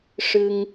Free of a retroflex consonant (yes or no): no